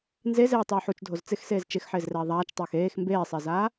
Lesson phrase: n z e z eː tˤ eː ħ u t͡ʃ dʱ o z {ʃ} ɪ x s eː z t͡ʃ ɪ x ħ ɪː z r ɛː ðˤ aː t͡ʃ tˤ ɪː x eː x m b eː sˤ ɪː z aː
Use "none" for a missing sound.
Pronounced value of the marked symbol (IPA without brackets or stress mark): t͡s